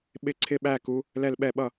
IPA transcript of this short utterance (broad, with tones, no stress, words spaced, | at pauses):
ɓɪ˧˩ǀʰɪ˧˩ɓæ˧˩ku˩˧ | lɛ˧˩lɓɛ˧˩ɓʌ˧˩